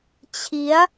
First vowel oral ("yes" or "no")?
yes